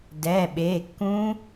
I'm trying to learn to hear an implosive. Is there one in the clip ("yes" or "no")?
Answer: yes